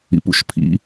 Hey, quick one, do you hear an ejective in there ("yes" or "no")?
no